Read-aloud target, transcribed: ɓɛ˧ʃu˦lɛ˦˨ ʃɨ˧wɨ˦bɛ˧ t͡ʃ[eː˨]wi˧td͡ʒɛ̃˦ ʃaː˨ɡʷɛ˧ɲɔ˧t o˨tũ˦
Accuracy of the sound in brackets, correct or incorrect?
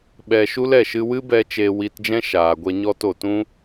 incorrect